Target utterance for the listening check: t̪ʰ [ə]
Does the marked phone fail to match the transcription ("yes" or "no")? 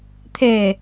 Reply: yes